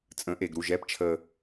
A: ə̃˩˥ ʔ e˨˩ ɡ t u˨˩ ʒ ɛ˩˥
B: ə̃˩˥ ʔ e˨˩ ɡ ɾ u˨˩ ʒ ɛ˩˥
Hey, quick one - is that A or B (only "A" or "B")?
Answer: B